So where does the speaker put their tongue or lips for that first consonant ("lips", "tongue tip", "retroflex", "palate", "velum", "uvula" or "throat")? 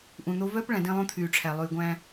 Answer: throat